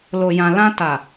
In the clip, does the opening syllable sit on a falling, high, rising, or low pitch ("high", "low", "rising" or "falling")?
low